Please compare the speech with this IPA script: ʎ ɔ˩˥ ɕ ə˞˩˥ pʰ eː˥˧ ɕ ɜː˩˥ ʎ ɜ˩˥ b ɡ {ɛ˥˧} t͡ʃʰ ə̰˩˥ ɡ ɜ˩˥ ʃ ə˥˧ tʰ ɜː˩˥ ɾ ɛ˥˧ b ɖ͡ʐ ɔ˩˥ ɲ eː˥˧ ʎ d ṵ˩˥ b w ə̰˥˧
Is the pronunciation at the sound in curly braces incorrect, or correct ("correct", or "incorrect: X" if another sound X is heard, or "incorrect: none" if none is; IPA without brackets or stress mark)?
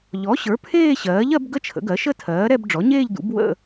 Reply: incorrect: ə˥˧